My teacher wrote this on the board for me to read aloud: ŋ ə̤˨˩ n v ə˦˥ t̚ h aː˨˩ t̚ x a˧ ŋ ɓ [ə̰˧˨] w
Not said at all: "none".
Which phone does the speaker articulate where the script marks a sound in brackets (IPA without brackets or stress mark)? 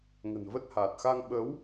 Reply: ə˨˦